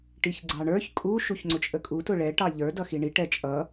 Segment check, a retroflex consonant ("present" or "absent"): present